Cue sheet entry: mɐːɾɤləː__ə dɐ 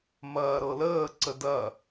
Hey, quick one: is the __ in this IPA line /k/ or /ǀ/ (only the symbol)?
ǀ